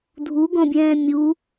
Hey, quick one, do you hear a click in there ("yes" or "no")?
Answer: no